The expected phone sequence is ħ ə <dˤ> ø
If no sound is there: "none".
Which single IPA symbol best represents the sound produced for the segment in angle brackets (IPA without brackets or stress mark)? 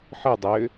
dˤ